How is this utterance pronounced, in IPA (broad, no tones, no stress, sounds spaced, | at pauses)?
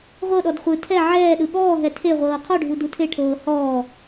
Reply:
ʁʷ ɤ ɗ ɔ d χʷ ɯ tʰ ɛ ʕ ɛː ɗ ɯ ɠ ɔː ɦ ɛ tʰ e ʁʷ ɤː qʰ ɔ ɖʱ u d u tʰ e ʈʰ ɤː h ɔː